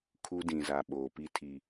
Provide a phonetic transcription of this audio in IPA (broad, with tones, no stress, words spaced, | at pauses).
kʰu˦dĩ˨za˨ ɓoː˨pi˦ tʰiː˨